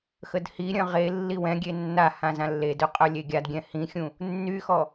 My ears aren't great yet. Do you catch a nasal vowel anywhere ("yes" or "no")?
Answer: yes